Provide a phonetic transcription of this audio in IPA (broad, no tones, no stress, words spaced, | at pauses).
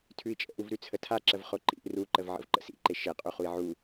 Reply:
tʰʉi̯t͡ʃʼə̰ʔuvɾʉ t͡sʰətʰaǁəv χoǃḭʔ ruǃəv ʕə̰vǃə̰sḭǃe ʃeqʼu χui̯ʕu